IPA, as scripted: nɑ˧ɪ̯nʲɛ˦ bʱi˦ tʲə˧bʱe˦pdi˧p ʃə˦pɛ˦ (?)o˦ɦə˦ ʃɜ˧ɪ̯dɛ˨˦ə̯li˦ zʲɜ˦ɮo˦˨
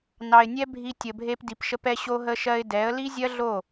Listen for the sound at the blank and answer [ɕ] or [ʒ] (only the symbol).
ɕ